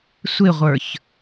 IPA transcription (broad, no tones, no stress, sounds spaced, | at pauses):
sʷ ɪ ʁʷ ə˞ ç